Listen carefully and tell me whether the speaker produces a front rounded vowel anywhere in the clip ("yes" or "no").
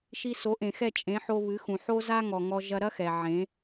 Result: no